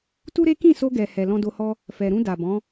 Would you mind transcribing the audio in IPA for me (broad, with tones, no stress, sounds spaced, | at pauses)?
t u˦ ɾ e˦ k ĩ˦˨ s o˧ ɡ ɛ˨ h ɛ˨ l ɔ̃˧ d o˧ h ɔ˦ | f ɛ˨ ɾ ũ˧ d a˨ b ɔ̃˨˦